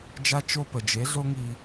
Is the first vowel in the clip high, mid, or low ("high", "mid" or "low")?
low